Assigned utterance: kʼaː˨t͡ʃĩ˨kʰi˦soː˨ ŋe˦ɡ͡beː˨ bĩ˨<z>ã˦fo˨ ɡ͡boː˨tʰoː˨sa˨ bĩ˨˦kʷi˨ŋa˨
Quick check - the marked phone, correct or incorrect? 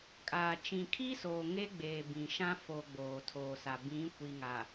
incorrect